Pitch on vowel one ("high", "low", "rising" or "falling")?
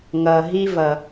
low